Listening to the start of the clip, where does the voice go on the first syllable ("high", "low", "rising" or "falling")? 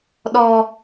low